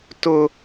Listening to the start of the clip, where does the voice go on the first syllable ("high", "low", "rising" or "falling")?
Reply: high